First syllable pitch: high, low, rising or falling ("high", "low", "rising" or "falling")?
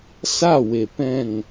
falling